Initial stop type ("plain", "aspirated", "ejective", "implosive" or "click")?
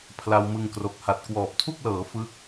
aspirated